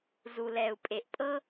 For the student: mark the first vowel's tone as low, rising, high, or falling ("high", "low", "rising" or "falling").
low